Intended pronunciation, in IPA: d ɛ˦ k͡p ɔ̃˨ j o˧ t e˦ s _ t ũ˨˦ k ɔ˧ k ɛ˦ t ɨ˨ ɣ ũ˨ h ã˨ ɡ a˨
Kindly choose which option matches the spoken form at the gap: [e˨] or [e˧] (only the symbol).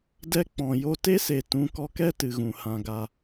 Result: e˨